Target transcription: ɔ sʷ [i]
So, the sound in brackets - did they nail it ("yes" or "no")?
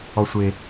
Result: no